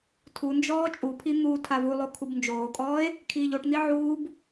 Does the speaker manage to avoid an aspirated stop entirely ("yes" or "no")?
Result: no